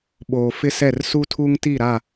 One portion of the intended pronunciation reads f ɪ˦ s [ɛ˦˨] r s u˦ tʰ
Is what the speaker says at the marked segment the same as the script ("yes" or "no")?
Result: yes